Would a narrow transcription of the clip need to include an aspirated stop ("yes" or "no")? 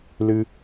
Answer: no